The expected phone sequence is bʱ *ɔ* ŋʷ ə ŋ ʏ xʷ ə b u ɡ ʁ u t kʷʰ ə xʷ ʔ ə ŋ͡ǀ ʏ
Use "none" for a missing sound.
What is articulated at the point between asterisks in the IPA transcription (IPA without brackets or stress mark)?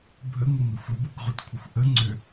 ə